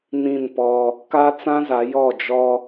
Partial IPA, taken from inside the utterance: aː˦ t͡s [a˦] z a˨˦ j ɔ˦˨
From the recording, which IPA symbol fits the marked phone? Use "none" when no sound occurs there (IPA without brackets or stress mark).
ã˦